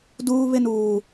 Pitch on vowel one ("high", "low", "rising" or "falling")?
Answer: high